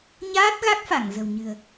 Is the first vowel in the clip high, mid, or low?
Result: low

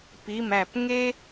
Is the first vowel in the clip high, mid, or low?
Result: high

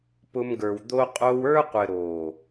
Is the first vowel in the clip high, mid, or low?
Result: high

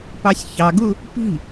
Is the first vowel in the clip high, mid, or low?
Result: low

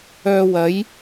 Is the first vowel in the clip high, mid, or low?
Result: mid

